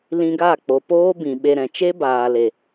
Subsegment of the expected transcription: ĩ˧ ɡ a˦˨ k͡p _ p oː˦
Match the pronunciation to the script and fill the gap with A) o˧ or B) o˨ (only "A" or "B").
B